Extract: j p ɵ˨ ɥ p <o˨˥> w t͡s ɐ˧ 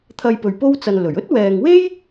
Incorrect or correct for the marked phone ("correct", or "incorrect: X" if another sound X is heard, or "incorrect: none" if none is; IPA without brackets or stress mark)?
incorrect: o˥